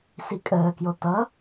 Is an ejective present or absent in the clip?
present